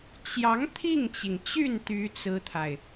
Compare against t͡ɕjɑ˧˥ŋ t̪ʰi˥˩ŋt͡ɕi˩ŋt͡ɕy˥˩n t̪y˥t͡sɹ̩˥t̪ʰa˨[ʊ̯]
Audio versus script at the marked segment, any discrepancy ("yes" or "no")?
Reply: yes